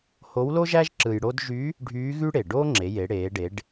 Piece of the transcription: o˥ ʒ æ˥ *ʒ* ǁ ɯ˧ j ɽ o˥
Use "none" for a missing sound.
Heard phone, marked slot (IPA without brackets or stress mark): ʒ